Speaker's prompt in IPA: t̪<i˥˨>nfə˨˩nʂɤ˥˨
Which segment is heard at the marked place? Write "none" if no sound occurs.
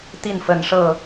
i˥˨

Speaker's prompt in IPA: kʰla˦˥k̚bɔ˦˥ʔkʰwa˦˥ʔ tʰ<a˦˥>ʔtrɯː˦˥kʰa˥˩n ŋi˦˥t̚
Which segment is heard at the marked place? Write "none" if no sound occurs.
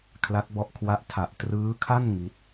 a˨˩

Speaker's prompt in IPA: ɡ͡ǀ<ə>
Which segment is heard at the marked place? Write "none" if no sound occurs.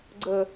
ə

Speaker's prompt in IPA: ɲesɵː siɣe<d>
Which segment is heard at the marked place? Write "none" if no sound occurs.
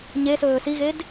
d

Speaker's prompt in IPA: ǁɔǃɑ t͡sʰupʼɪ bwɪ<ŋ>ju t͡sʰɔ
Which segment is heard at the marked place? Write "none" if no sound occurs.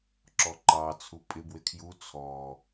kʰ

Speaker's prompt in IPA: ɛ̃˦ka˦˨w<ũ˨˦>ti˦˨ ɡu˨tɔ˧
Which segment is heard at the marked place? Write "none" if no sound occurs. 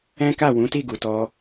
ũ˨˦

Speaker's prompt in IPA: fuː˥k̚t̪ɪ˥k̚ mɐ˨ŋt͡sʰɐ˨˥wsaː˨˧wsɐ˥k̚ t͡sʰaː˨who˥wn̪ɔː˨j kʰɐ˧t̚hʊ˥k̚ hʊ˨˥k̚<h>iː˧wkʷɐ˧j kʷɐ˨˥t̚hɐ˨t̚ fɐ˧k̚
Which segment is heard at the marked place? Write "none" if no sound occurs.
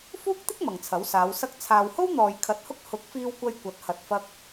f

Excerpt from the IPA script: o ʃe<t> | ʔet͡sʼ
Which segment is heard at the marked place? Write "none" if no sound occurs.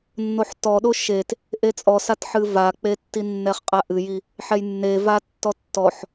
t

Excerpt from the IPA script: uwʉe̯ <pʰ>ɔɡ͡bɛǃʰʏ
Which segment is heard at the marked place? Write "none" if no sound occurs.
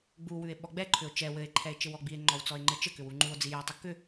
ɓ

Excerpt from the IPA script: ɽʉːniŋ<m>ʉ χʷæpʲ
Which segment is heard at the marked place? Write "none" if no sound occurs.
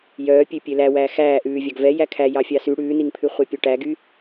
pʰ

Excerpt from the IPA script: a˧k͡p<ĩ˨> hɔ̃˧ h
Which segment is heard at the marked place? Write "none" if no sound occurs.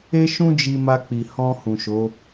i˨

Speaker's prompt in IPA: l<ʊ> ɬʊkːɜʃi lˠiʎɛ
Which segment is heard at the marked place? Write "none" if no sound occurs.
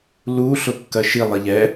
u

